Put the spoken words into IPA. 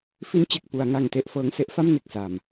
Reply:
f i˧ n t͡ɕ e˨˩ k̚ p u˩˦ a̯ ŋ a˨˩ ŋ t e˥˩ ʔ f ɤː˦˥ ŋ s e˦˥ ʔ f a˥˩ m n e˨˩ k̚ s a˨˩ m

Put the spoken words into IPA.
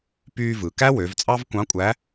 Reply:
p yː˧ v ɯ˩ k æ˥ w ø˩˧ v t͡sʼ ɑ˥ v kʷ ɑ̃˧˥ kʷʼ æ˧˥

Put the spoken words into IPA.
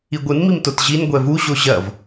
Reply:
i ɡʷ ɨ n m i m t o t ʑ i n ɡʷ ɛ v u ʑ o ʑ ɐ v

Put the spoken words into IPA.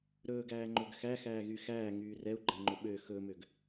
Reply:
ɾ ɵː ɡ æː ŋ͡ǃ ɵ ɡ x æ x æː ɣ y x æː ŋ yː r ɛ u̯ ɡ͡ǃ æ ŋ͡ǃ ɵ ɓ ø x ɵ m ø ɡ

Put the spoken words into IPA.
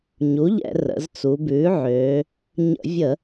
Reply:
ɲ u˩˥ ʎ ɛ̰˧˩˧ r ə̰˩˧ z t͡s u˩˧ b ʉː˩˥ ʕ øː˩˧ | ɲ ə̰˧˩˧ vʲ ə˧˩˧

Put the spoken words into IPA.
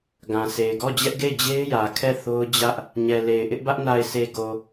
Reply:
ɡ ã˨ sʰ e˨ ɪ̯ ɡ ɔ˦˨ d͡ʑ ɛ˦ ʔ ɡ e˦˨ ɪ̯ d͡ʑ e˦ ɪ̯ j ä˨ kʰ ɛ˦˨ θ o˦ ʊ̯ d͡ʑ ä˦ ʔ | ɲ ɛ˨ l e˨ ɪ̯ ʔ ɪ˦ ʔ b ä˦ ʔ n a˨ ɪ̯ sʰ e˨ ɡ o˨

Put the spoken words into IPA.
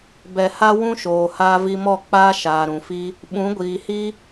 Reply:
b ɛ˨ h a˦ w ũ˦ ʃ oː˨ h aː˧ v i˧ m ɔ˦˨ k͡p aː˦ ʃ aː˨ ɾ ũ˨ f i˦ | ɓ ũ˨˦ ɡʷ iː˨ h i˦

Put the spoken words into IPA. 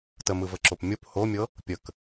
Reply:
t ə m ɯ v ə ǁ o p mʲ o p h o mʲ ɤ | pʲ ə k

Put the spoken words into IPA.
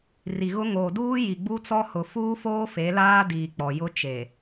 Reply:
r i˨ ɣ ʊ˦ ŋ oː˨ d uː˦ j i˨ ɡ͡b u˦ t͡s ɔ˦ h ʊ˨ f uː˦ f oː˦ f e˨˦ l aː˦ d iː˨ k͡p ɔ˨ j ʊ˦ t͡ʃ e˨

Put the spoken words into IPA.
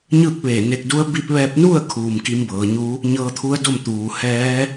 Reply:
ɲ ɯː˥˨ k̚ ʋ eː˧˩ n e˧ k̚ d u˧˥ ə̯ b i˧ p̚ ʋ ɛː˧ p̚ n u˥˨ ə̯ kʰ uː˩ m k i˧˥ m b ɤː˩˧ ɲ u˧˥ | ɲ ɤː˧ t̪ʰ u˧˥ ə̯ d o˥˨ m t̪ uː˩ h ɛː˧˥

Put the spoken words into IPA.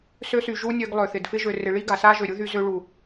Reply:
s ø˧ s y˨ ʒ u˧ nʲ ø˧ ɡ lˠ ø˨ θ ɪ˨ d f ɪ˦ ʒ ø˧ r ɪ˧ ɭ i˦ ɡ a˨ s a˦ ʒ ø˨ ɾʲ u˦ ð y˧ z ø˧ ɭ u˨

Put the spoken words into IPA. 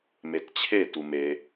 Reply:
m e t t͡ɕʰ e t u m e

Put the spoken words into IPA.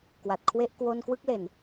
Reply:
k w a˨˩ t̚ kʰ w e˥˩ ʔ k w o˥˩ n k w ɯ˥˩ k̚ l e˨˩ n

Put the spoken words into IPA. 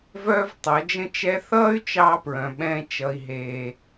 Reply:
v œː˦ v tˤ ʌ˨˦ d͡ʒ ə̃˦ t͡ʃ ɛ˦ θ ʌː˦ y̯ t͡ʃ ɑː˦ p ɹ œ̃˨ ɓ ɛ̃ː˦ t͡ʃ ʌ˦ i̯ ɦ eː˦

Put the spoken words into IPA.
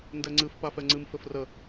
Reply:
n d ɛ ŋ͡ǀ ɨ f p a f ɛ ŋ͡ǀ ɨ m f ɘ f r ə

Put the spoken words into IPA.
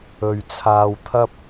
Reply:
ɵ˨ ɥ t͡sʰ aː˧ w t̪ʰ ɐ˥ p̚

